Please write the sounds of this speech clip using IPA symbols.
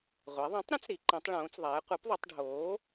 ʁʷɛ˩˧ðˤɛ̃˩˥tˤɾə̃˩˥t͡s ɾi˩˧ǃĩ˩˧tˤɭõː˩˧t͡sðˤɛː˩˧ qʷɛ˩˥pðˤo˩˧tˤɖʱoː˩˥

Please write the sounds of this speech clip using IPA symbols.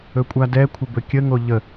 ɵkʷʼadɛkʷʰə bɵkʲəŋo ʎə

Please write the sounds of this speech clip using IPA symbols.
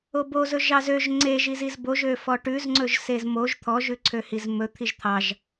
obozɵ ʒɑzøʒ ŋ͡ǀeʒiziz boʒø fɔʈʉzŋ͡ǀɵʒ sezmoʒ t̪ʰɔʒʉ ǀʰøhizmɵ t̪ʰiʒt̪ʰɑʒ

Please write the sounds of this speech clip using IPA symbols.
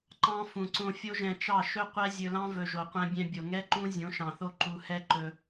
ǃɑ̃˧ fũ˨ǀõ˧fʲo˦ʒɛ̃˧ t͡ʃɑ˦˨ʃɵ˦ qʷɛ˦zʲɵ˧lɑ̃˦ vɵ˨ʒo˨qʷɛ̃˧bʲɛ̃˧ bʲo˨ŋɛ˦ǃũ˦ zʲõ˨˦ʃɑ̃˨θo˦ ǃu˧ hɛ˦ ǃɵ˧

